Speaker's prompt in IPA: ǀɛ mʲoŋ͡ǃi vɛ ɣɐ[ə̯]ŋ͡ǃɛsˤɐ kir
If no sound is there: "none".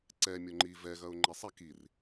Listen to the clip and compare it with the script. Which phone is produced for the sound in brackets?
ʊ̯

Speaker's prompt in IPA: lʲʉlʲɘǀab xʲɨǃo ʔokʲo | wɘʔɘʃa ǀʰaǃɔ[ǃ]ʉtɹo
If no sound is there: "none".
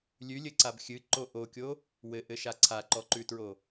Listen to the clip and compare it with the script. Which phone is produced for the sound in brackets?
ǃ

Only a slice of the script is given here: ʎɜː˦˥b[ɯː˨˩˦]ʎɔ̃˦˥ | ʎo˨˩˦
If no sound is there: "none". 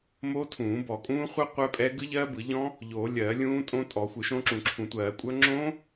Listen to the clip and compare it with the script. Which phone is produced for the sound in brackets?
ɯ˨˩˦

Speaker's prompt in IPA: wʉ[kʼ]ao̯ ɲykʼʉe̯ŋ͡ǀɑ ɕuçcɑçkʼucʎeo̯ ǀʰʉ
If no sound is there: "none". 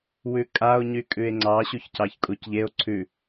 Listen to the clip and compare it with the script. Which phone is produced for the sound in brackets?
kʼ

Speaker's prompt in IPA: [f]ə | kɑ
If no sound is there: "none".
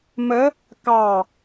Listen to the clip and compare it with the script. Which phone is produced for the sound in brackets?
m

